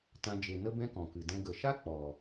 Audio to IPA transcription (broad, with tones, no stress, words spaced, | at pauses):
tã˧ d͡ʒe˨nə˧ bɛ̃˦kɔ̃˨kɨ˨dɛ̃˧ ɡə˨ʃa˦ k͡pɔ˨